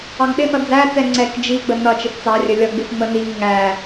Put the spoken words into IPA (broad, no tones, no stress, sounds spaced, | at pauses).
ɑ ŋ ɗ ɪ n ʌ d͡z æ t͡s ɛ ŋ͡ǀ ɛ k d͡ʒ i ɡ͡b ə n ʌ t͡ʃ ɪ f t͡s ɑ rʲ ə lʲ ʌ ɡ͡b ɪ f ŋ͡m ə n i ŋ ə ŋ æ